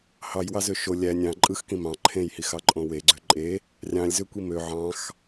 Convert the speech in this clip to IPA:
h ɑ j w ɑ z ø ʃ o lʲ æ nʲ ɑ̃ ǃʼ ɯ x k ĩ m ɑ̃ ǃʰ ẽ j h i x ɑ ǃʼ õ w e ɡ͡ǀ ø ǃʼ e | rʲ ɑ̃ lʲ z ø kʷ i m ø ʕ ɑ̃ x

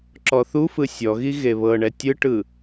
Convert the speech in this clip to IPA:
ǁ ɔ θ u f ɯ sʲ ɔ ɣ i ɣ e β ɤ ɳ ɛ tʲ ɯ ʈ ɯ

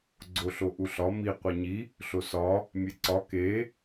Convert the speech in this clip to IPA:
ɡ͡ǀ o ɬ o ʔ u ɬ ɒ m i qʷ e ɲ i | ɬ o s ɒ | mʲ e ǀ ɒ k e

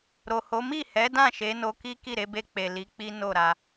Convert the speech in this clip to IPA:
ɾ o˨ h o˨˦ m i˦˨ h ɛ˨˦ d ã˦˨ ʃ e˨˦ n o˧ k i˦ k i˦˨ ɾ e˨˦ b e˧ k͡p e˨ l i˨˦ k͡p i˦ n o˦˨ ɾ a˧

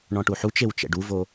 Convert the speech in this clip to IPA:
ɳ ɔ̃ ʈ u ħ u t͡ʃ e w t͡ʃ ɛ̰ ɖ u v o

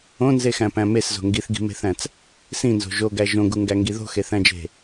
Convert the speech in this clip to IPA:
õ n z e x æ̃ p æ̃ m e s z o̤ ŋ ɡ i θ ɡ i̤ m e̤ θ æ̃ t͡s | s ĩ n z o̤ ʒ o ɡ æ ʒ õ ɡ u ŋ ɡ æ ŋ ɡ i ð o̤ x e θ æ̃ d͡ʒ e̤

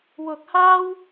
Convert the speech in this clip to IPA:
w ʊ˧ k̚ h aː˥ w

